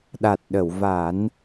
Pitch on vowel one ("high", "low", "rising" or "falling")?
low